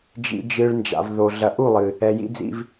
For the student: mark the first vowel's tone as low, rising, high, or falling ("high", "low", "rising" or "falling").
low